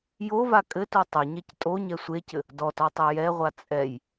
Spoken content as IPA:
j o v a kʼ ɘ t o tˤ ɘ ɲ ɛ c tʼ o ɲ ɛ sʷ e c ɘ | d ɔ t ɔ tˤ ɛ j ɛ ʁʷ a t͡sʼ ɛ j

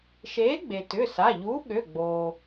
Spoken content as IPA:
ʃ eː˨˥ ɡ͡b e˩ t ʏ˩˧˩ s a˩˧˩ ʎ uː˨˥ ɠ ø˩˧˩ ɡ͡b oː˩

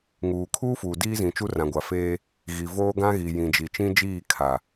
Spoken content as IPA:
ŋ uː˨ kʰ uː˦ f uː˨ d iː˦ z ĩ˨ t͡ʃ u˦ r ã˨ ɡʷ a˨ f eː˦ | ɣ i˨ v oː˦ ɡ ã˦ ɣ i˨ j ĩ˨ d͡ʒ i˨ t͡ʃ ĩ˦ d͡ʒ iː˦˨ kʰ a˨

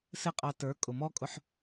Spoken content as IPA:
s ɪ˦ qʼ ɑ˧ t ə˞˨˦ kʼ ʊ˨ m ɔ˦ kʼ ʊ˧ ħ

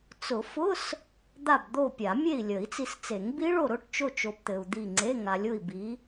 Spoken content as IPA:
t͡s ʊ˨˩˦ f ʊ˧˥˧ s | d̪ a˦˨ b d̪ o˦˨ pʲ a˨˩˦ mʲ e˦˨ i̯ lʲ ə˨˩˦ i̯ t͡s i˨ s t͡s e˨˩˦ ŋ b i˦˥ ɭ o˦˨ ɾ ʊ˧˥˧ ʈ t͡ʃ o˦˨ t͡ʃ o˨ b t̪ ɘ˨ u̯ d̪ i˦˨ ŋ͡ǀ e˧˥˧ ŋ a˨ lʲ ʊ˦˨ i̯ b i˨˦

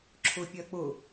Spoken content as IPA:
ǁʰ ʊ pʲ ɜ k͡p ʊ

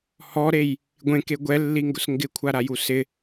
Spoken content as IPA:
h ɔ ɾ e j | ɡʷ ẽ k e ɡʷ ɛ lː i ŋ ɡ ʊ s ŋ ɡ ɪ kʷʰ a ɾ a j u s ɪ

